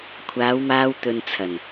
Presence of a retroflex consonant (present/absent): absent